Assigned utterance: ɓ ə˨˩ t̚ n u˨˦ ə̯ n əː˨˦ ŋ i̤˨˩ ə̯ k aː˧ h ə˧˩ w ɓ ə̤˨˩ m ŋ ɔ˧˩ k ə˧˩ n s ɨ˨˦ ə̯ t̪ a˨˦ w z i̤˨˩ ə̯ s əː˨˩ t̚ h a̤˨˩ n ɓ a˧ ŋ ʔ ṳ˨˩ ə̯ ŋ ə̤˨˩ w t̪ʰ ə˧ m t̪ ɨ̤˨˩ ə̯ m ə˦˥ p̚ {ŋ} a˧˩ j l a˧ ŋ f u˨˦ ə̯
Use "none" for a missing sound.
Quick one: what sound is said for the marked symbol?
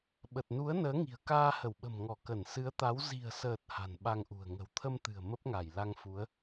ŋ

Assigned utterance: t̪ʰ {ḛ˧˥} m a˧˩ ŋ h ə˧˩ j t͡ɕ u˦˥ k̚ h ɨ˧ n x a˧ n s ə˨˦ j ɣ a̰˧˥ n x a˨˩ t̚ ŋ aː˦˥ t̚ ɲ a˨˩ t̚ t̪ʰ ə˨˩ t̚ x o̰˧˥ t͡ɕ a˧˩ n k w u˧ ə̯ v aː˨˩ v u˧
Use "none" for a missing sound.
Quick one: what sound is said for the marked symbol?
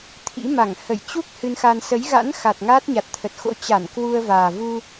ḭ˧˥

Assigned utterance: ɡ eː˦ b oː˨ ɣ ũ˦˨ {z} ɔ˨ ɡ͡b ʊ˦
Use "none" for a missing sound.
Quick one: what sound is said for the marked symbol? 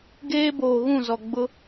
z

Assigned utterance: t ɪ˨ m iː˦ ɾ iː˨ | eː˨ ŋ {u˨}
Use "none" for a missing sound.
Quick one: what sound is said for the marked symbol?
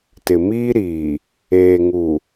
u˨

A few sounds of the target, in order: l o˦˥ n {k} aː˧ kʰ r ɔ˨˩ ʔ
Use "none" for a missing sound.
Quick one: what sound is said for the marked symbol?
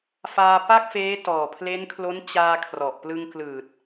t͡ɕ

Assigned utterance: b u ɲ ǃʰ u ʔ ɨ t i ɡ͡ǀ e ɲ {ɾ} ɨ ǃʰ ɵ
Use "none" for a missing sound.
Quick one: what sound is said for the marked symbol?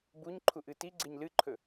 l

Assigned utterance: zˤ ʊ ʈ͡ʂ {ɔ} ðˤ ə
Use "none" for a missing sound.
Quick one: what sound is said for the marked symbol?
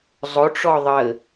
ɔ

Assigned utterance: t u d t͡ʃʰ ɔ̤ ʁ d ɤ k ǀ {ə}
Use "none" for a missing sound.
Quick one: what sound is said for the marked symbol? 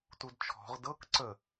ə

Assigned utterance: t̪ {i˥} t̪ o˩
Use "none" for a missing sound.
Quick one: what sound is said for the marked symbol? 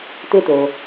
e˥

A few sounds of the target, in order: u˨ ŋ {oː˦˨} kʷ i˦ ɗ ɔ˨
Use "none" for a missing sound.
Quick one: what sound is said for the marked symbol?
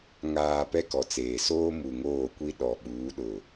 oː˦˨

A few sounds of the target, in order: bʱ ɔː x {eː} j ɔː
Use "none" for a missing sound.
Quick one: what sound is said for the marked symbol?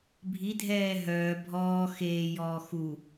eː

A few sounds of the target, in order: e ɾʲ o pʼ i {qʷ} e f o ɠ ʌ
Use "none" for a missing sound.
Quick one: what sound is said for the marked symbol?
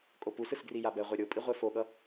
ʁʷ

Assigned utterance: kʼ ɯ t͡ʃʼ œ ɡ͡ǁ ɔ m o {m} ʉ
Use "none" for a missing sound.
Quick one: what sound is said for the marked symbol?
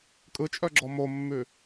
mː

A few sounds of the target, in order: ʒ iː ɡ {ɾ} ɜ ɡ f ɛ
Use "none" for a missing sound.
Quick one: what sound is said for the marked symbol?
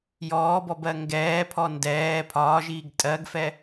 tʼ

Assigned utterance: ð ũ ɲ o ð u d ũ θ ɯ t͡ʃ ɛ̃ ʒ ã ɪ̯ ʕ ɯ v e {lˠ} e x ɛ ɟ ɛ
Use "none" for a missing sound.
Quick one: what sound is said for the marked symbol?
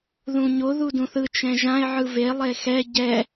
lˠ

